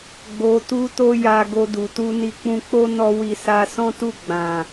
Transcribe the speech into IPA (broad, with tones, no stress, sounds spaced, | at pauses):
ɡ͡b o˧ t u˦ t o˦ j a˧ ɡ o˧ d u˨ t u˧ n i˧ k͡p ũ˧ k͡p o˦ n ɔ˦ w i˦˨ s a˧ s ɔ̃˦ t u˦˨ ɡ͡b ã˨